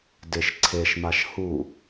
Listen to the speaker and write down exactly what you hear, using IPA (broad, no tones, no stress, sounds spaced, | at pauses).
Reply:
d ɪ ʃ ǀʰ e ʃ m a ʃ h u